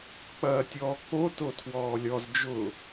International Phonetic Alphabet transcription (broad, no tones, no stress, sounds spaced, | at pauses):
k͡p ɐː tʲ ɔː k͡p o t o tʰ w ɔː lʲ ɔ z d͡ʒ ʊ